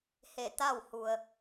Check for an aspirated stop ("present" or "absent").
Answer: absent